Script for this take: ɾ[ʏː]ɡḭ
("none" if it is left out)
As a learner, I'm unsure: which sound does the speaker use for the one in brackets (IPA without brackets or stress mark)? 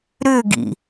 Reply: ʏː